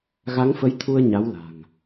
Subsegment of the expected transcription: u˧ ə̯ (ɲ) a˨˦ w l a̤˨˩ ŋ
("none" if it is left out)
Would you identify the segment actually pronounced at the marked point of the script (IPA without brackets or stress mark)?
ɲ